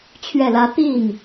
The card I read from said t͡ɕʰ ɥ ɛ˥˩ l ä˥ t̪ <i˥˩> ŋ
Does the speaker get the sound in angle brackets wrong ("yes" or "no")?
no